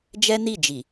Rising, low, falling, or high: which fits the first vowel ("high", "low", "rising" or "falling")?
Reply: high